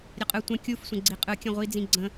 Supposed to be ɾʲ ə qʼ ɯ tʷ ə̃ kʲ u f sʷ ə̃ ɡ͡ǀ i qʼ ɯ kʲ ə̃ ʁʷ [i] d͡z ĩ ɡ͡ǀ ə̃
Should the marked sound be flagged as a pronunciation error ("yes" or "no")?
no